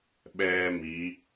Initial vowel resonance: oral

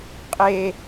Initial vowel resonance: oral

